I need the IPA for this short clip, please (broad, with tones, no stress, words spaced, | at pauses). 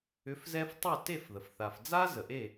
ʏ˩˥fzɛ˧f tˤe˥˩ te˥˩fðə˩f θa˩fd͡za˥ zə˩ʔe˥˩